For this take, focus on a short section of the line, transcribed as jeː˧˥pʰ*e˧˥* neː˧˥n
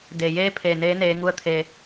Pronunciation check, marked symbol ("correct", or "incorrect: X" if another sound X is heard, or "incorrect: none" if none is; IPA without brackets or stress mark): incorrect: e˩